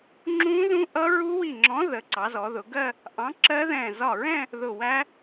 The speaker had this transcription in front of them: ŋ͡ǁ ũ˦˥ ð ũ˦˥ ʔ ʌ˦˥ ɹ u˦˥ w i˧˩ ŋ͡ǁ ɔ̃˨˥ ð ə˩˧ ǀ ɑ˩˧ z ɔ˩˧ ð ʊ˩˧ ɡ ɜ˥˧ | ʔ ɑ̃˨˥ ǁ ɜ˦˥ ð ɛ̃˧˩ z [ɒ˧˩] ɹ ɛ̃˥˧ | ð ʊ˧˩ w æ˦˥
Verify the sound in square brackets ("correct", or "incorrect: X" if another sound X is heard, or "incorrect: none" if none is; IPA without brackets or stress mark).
correct